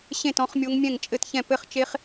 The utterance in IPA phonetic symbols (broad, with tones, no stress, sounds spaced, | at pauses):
ɕ ẽ˥˨ t ɔ̃˦˥ χ mʲ o˦˥ ŋ mʲ ɛ̃˥˨ ŋ t͡ʃʼ ɘ˥˨ t ç ɛ̃˥˨ p ɘ˦˥ χ t͡ʃ e˦˥ χ